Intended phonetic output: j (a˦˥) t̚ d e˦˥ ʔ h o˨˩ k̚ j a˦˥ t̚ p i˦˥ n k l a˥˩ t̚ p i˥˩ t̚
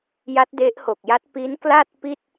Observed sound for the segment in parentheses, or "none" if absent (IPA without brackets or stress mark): a˦˥